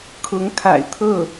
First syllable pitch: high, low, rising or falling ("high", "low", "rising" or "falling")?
rising